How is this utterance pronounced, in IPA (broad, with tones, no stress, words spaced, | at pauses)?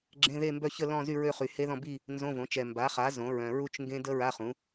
ɡ͡ǁẽ˧˥˧ ðe˥˧mbœ˥˧çə˥˧ lɔ̃˥˧zy˥˧ɹø˥˧ χy˨he˦˥ðɔ̃˥˧ bi˥˧ | nzõ˧˥˧võ˩˥t͡ʃɛ˨ mba˩˥χa˩˥ zõ˩˥ɹœ̃˨ ɹu˥˧t͡ʃŋɡẽ˦˥ də˦˥ ɹa˧˥˧χũ˩˥